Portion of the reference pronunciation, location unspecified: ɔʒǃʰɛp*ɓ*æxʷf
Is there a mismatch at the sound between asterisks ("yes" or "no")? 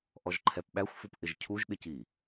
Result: no